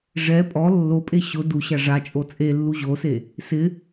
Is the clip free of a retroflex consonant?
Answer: no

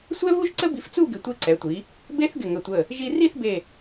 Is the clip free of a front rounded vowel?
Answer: yes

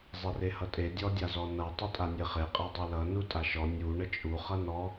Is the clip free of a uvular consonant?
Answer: no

